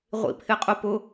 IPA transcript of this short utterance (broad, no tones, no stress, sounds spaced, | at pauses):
ʁʷ ḭ pʰ ɪ qʼ ʊ p ʊ